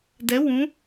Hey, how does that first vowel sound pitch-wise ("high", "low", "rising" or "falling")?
rising